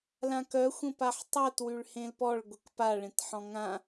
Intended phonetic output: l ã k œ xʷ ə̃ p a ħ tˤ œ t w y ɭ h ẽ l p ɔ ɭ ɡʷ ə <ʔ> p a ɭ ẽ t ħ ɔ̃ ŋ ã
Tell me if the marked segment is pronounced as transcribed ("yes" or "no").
no